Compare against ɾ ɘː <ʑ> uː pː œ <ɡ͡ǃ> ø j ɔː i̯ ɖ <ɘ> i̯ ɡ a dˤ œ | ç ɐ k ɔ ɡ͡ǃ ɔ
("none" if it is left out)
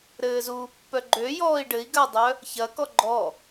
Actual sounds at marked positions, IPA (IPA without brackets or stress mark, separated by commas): z, ɡ͡ǃ, ɘ